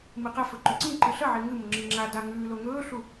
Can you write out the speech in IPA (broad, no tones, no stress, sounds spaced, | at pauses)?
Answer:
m ɨ q ɐ f ɵ ǃ ɵ ǀ ĩ ǃ ɨ ɬ ɐ ʕ e ŋ ɨ m o ŋ͡ǁ i ŋ͡ǁ a d a ŋ ʉː l o ŋ ɵː ɬ u